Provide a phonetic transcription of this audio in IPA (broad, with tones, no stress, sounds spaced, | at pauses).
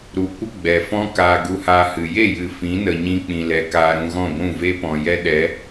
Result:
ɾ u˨ kʷ ə˦ ɡ͡b ɛ˨ f ɔ̃˦ k aː˧ ɡ u˧ h aː˧ h ɨ˨ j e˦˨ j ɨ˨ f ĩ˨˦ n ə˨ ɲ ĩ˧ k͡p ĩ˨ l ɛ˨ k aː˧ ɾ ũ˧ ɣ ɔ̃˦˨ ɡʷ ũ˦˨ v e˦ p ɔ̃˨ j ɛ˦ ɗ ɛ˨˦